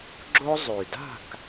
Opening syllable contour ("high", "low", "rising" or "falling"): high